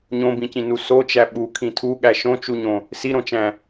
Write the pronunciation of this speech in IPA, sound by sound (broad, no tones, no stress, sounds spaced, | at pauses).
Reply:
ɲ õ b ĩ c ĩ n u s o t͡ʃ æ ɓ u kʰ ĩ tʰ u ɠ æ ʃ õ t͡ʃ u ɲ õ | s i ɾ õ t͡ʃ æ̃